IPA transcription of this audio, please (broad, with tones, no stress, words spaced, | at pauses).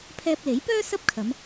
pʰɛː˧p̚le˨˥jpœː˥ sɐ˥p̚kʰɐ˨˧m